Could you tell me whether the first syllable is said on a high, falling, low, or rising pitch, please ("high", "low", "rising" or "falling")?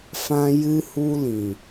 high